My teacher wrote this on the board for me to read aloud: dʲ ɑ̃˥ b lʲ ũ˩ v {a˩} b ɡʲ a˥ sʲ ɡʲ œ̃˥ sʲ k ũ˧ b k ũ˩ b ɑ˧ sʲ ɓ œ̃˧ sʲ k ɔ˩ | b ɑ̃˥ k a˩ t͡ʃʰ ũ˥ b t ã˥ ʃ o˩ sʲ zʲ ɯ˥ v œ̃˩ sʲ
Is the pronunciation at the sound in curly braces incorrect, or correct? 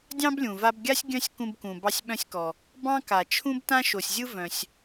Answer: incorrect